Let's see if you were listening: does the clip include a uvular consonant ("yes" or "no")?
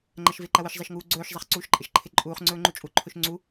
yes